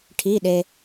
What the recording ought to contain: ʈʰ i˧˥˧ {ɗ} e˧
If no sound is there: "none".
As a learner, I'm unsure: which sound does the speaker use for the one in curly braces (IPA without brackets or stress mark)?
ɗ